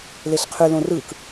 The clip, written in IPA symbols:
leɬqʰy lõrɯk

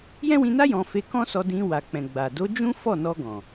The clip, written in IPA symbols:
jɛ̃˦wĩ˧na˦ jɔ̃˧ fe˧kɔ̃˦sɔ˧ dĩ˧wa˨k͡pɛ̃˨ɡ͡ba˨ do˨˦ d͡ʒũ˦ fɔ˦˨nɔ˧ ɡɔ̃˨

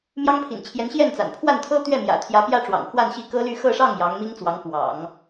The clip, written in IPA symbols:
mjɑ˥ŋ pʰḭ˨˩nt͡ɕʰjɛ˧˥nɕjɛ˥˩nt͡sa̰˨˩n pʰwa˥˩nt̪ʰɤ˥ t̪ɥɛ˥˩mjä̰˨˩t̪ʰjä˧˥ pjä˥ʈ͡ʂwɑ̰˨˩ŋ xwa˥˧nɕi˥˩kɤ˥ly˥˧ xɤ˥˧ʂɑ˥˩ŋ jɑ˧˥ŋmi˥ŋt͡swɑ˧˥ŋ pwɑ̰˨˩˦ŋ

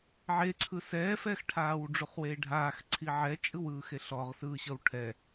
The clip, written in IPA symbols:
ʕeǀʰɯ sɛfɛxʈʰaːw ɖ͡ʐuχweːɖʱaːx ǀʰiʕɛt͡ʃʼɯwɯː xeɬɔʁsɯːɕɤw ʈʰɛ

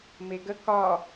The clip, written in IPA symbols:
meɡə kɒ

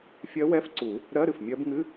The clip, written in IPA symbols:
fʲɜ˧˥wɛ˧˥˧fǀu˨˩˦ | ɾɜ˧˥˧ɾɨ˩fmʲɜ˧˥bŋɨ˧˥˧

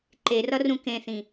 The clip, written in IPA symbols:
ǃerʌrũ kẽθĩ

